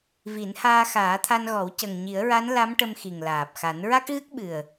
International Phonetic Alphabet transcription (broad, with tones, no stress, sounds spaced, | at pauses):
v i˨˩˦ n h aː˧ x aː˨˩˦ t̪ʰ a˧ n ɣ ɔ˨˩˦ w c ə˨˩ ŋ ɲ i˨˩˦ ə̯ ɹ a˧˥ n l a˧˥ m ʈ ə˧ m x i˨˩ ŋ l aː˨˩ p̚ x a˨˩˦ n ɹ a˦˥ k̚ ɣ ɨ˦˥ k̚ ɓ ɨ˨˩ ə̯